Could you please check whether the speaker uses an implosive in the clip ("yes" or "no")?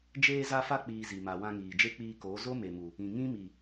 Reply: no